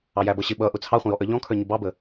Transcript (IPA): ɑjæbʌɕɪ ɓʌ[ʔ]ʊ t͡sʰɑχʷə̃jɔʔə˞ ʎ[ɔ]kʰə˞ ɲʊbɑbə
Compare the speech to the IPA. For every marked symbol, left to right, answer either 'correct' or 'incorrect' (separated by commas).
correct, incorrect